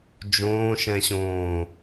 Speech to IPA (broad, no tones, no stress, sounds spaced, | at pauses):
d͡ʒ õː ʃ ɛ̃ ɕ õː